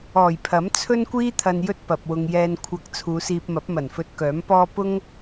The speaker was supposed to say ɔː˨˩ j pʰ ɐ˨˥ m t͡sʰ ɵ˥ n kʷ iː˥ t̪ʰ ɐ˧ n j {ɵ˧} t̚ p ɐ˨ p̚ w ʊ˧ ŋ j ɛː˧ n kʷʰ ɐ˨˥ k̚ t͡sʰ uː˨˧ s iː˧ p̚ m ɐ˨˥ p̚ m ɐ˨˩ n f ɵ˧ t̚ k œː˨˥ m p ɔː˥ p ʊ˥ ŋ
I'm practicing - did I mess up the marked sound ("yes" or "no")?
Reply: yes